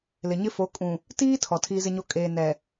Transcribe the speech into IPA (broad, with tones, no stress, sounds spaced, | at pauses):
l ɪ˨ ɲ ɪ˦ f o˨˦ kʼ ũ˨ | t iː˦ tʰ ɔ˨ tʰ iː˦ z ɪ˦ ɲ o˦ kʼ eː˨ n ɛ˨